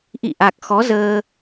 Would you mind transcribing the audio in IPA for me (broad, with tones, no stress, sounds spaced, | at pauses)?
ʔ ḭ˧˨ ʔ a˨˩ k̚ x ɔ˨˦ z əː˧